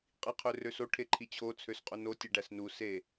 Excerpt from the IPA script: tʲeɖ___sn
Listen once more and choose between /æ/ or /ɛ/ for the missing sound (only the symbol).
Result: æ